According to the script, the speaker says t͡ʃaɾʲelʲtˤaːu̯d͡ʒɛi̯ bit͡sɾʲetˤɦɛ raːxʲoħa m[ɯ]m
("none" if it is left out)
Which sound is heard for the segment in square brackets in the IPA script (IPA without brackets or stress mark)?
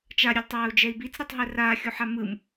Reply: ɯ